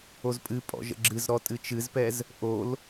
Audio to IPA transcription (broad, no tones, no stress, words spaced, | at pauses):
ozpʼɨpʼɔ̰ ʒə̰ɡ͡ǁɨzɾɔ tʼɨt͡ʃɨzpɛz | ʔol